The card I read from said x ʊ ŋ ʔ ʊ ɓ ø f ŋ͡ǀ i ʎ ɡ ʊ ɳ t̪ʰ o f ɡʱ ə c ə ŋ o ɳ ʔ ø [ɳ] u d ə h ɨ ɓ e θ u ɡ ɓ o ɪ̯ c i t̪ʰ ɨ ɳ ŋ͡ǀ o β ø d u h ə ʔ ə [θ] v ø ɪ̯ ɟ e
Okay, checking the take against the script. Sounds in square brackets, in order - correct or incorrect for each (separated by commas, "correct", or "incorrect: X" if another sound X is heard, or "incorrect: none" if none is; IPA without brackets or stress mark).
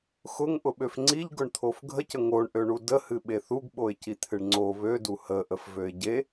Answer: correct, incorrect: f